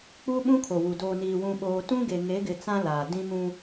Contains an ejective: no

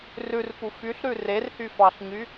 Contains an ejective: no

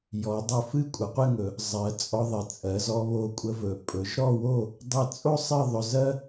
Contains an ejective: yes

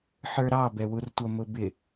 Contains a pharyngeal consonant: yes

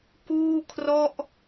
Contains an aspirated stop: yes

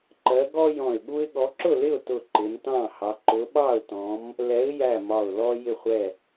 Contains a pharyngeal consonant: no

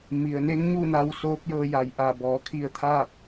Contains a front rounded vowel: no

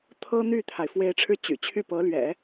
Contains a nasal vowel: no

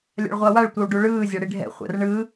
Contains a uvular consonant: yes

